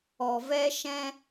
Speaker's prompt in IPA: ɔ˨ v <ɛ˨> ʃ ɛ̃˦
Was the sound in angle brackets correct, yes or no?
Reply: no